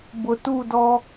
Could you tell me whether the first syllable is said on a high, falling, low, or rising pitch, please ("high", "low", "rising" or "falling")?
low